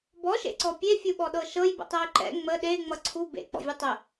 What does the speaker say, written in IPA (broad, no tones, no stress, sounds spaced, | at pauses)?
b ɔ ʃ ḛ ǀ ɔ pʲ e fʲ u ɓ ɔ ɗ ɤ ʃ ɤ j b ə̰ tˤ ɛ y̯ ǃ ɛ̰ ŋ͡m ə ɗ e ŋ͡m ʌ ǀʰ u b ḛ k͡p ɔ̰ vʲ ʌ tˤ ə